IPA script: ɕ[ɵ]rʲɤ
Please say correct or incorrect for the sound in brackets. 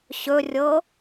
correct